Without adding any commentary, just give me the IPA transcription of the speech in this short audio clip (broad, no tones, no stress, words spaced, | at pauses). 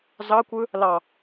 zɑkʷɯ | lɑ